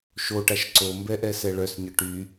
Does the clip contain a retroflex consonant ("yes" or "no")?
yes